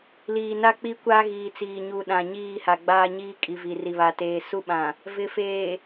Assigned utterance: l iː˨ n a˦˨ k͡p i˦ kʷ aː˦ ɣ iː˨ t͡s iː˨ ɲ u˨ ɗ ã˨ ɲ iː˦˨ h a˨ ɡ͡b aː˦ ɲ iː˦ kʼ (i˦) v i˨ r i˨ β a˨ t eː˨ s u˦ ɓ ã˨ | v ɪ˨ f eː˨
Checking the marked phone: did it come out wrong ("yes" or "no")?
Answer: yes